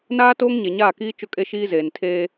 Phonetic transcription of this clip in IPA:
naː˦ toː˦ŋɲe˨ɲaː˦˨kiː˦ t͡ʃʊ˦kʼe˦ʃiː˦zeː˨n tʰeː˦

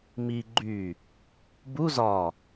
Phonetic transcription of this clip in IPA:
mi ɡ͡ǃy | bu zɒ

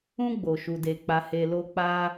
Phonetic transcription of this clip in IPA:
ũ˦ ɡ͡bo˧ʃu˧de˧ k͡pa˧he˧lo˦ k͡pa˦

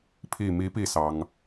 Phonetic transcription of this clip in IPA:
pʰi˨˩mi˧˥pi˨˩ sɑ˧˥ŋ

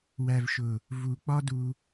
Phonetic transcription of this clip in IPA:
wæ˨vʃʊ˨ | vu˨ k͡pɒ˦du˧

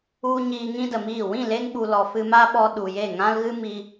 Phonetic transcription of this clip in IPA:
u˧ ɲiː˧ŋĩ˦də˨miː˦˨ wĩ˦˨le˧ŋ ɓu˨lɔ˨ fɨ˧ma˦ɓɔ˧ ɗu˨je˦˨ŋã˦l ɣɨ˦mi˧

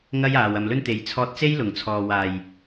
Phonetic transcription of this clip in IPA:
ŋɐ˥jaː˨w ɐ˨mlɵ˥nt̪e˨j t͡sʰɔː˧t̚t͡se˥jlʊ˨˩ŋ t͡sʰɔː˨waː˨˩j

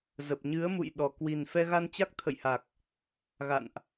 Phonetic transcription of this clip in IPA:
zə˨˩p̚ɲɨ˨˦ə̯mṵ˧˨jɗɔ˨˩ kwi˨˩nfɛ˧ ɣa˧nt͡ɕa˦˥k̚t̪ʰə̰˧˨jha˨˩k̚ | ɣa̰˧˨nʔ

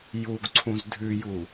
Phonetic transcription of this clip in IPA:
juɡǀʰũz dʱʉju

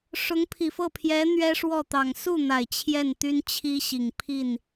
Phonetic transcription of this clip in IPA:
ʂʊ˧˥ŋpʰi˨˩fɤ˥˩pʰjɛ˧˥ n̪ɥɛ˥ʂwɔ˥˩ t̪ɑ˨˩ŋ su˥˩n̪a˨˩ɪ̯ t͡ɕʰjɛ˥˩nt̪y˥nt͡ɕʰi˥ɕi˨˩ŋ pʰi˥˩n

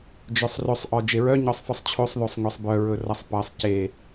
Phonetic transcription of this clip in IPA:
d͡ʒœsˤrɵsˤʔɔ d͡ʒeɹœɲɔsˤfɯsˤ t͡ɕʰosˤðosˤŋʷesˤ bœ ɹɵrʌsˤpʌsˤ ce

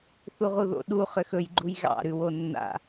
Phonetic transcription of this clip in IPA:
θuʁuðo̰ ɗu χʏxɵj ɡ͡ǃujɣɑ̰ ɾʉwonːa̰

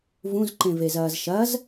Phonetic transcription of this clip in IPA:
vũzǃẽvezɐːz ʃɐz

